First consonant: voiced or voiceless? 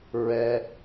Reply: voiced